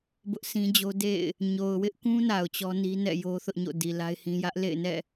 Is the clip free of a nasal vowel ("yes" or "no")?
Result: no